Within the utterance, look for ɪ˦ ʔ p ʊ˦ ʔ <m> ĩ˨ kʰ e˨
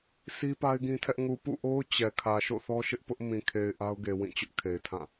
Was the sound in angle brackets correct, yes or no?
yes